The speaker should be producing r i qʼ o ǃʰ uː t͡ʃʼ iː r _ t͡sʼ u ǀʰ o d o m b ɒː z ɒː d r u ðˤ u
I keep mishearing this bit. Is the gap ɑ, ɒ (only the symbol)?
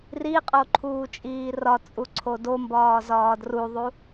ɒ